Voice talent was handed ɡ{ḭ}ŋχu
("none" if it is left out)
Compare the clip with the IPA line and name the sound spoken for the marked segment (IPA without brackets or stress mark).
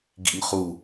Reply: ḭ